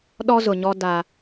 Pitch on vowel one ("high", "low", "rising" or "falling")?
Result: high